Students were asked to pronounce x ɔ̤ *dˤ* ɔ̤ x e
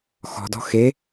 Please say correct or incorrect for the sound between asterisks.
incorrect